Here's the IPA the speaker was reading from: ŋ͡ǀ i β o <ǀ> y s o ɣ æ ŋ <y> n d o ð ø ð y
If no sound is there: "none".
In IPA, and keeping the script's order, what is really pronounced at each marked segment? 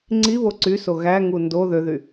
ǀ, u

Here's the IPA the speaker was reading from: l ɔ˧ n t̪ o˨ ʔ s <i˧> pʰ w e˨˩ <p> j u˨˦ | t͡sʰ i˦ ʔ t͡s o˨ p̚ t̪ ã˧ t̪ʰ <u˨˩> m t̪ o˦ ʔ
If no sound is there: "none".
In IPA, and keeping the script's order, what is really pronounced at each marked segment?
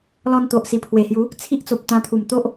i˨˩, h, u˨˩

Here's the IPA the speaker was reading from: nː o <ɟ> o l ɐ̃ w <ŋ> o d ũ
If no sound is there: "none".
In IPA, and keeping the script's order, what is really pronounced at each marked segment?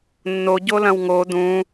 ɟ, ŋ

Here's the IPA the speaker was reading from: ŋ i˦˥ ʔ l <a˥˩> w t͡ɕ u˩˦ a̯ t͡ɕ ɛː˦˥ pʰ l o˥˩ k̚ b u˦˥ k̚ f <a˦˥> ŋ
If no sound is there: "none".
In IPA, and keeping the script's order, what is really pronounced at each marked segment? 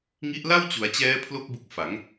a˥˩, a˩˦

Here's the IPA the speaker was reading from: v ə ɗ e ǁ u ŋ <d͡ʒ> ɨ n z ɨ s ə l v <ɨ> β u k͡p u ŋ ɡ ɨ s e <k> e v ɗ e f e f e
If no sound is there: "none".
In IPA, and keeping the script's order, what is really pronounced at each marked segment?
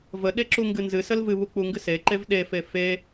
ɡ, ɨ, ǃ

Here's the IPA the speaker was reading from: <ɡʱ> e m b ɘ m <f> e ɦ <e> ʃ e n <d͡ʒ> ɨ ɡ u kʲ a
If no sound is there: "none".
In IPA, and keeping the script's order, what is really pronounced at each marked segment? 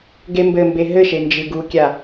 ɡ, b, ɘ, d͡ʒ

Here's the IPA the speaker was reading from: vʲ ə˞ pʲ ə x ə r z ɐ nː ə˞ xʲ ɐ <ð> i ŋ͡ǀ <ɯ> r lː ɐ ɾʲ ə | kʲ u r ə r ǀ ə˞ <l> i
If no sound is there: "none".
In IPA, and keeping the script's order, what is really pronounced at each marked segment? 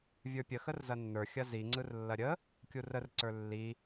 z, ɯ, lː

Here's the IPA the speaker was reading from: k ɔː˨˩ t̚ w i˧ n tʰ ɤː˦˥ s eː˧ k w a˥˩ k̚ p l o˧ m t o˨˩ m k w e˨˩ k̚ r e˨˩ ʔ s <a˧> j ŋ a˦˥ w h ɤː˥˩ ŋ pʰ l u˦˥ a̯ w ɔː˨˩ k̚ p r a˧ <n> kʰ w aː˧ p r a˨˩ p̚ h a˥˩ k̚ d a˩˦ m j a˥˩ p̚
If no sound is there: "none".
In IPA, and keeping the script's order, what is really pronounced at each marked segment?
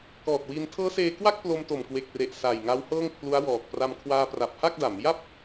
a˨˩, m

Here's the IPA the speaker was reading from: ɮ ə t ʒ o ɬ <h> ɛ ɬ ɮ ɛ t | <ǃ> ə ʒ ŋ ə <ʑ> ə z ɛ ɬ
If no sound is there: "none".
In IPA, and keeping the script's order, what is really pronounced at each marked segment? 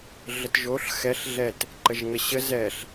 x, ǃ, ɕ

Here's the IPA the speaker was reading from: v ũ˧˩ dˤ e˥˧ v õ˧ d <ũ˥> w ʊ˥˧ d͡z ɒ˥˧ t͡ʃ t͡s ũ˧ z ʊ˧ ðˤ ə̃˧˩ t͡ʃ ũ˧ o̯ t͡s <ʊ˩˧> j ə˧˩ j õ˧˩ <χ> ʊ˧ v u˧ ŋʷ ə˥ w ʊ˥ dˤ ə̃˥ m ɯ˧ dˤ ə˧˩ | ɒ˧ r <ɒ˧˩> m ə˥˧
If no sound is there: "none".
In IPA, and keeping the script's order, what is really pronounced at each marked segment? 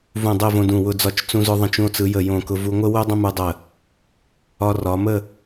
ũ˧˩, ɯ˩˧, k, ɒ˩˧

